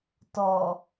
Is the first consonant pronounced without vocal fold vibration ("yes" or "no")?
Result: yes